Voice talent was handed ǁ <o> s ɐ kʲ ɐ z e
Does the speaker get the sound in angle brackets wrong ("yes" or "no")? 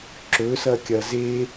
yes